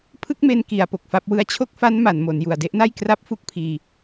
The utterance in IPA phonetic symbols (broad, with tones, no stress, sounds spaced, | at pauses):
pʰ ɯ˥˩ k̚ m e˧ n k i˧ a̯ p o˨˩ k̚ f a˥˩ p̚ w ɯ˧ a̯ t͡ɕʰ o˥˩ k̚ f a˦˥ n m a˩˦ n m o˩˦ n j u˨˩ a̯ d e˥˩ ʔ n a˥˩ j k r a˥˩ p̚ f u˥˩ k̚ pʰ iː˧